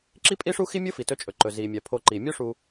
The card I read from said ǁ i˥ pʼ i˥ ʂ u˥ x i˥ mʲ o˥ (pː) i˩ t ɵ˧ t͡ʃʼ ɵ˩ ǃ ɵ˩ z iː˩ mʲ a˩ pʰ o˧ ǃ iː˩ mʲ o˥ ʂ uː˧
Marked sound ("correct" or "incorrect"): incorrect